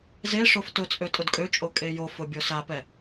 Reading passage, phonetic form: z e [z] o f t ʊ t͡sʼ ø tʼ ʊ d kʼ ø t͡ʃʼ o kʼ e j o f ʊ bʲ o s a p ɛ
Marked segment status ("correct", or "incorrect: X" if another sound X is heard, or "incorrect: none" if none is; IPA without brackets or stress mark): incorrect: ʂ